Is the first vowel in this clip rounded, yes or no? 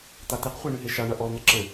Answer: no